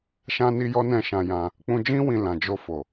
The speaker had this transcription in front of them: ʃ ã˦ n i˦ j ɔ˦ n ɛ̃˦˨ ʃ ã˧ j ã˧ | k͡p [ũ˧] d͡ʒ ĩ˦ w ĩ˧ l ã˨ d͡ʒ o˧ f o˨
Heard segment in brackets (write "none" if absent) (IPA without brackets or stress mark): ũ˧